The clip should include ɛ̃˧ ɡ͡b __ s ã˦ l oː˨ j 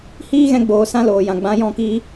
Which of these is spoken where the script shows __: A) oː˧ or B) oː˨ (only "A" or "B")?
B